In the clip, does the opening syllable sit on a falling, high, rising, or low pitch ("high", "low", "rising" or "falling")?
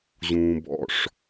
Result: low